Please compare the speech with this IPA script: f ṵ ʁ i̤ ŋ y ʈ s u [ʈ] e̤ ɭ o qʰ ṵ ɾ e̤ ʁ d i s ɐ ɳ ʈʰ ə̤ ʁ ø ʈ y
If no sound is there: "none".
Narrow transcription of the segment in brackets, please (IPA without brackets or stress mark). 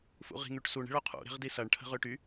ɳ